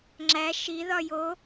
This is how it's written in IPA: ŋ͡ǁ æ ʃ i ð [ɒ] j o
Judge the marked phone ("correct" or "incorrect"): correct